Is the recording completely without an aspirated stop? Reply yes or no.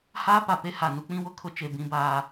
no